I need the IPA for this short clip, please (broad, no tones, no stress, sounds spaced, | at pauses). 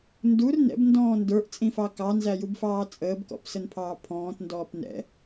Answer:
n d u r n ɛ̰ b n d ɔ̃ː n d ə˞ ʔ t͡sʼ ĩ f ɑ k ɑ n z æ j u b f ɑː t͡sʼ əː b k ɔ̰ p s ə n pʰ ɑː pʰ ɔ̃ː t n d ɔː p n ɛ̰